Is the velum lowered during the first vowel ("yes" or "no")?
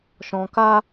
yes